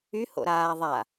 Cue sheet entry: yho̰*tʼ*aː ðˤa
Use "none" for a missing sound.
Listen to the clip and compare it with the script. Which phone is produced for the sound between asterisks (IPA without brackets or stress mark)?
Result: ɾ